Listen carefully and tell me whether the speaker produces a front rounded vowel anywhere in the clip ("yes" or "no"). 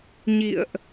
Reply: no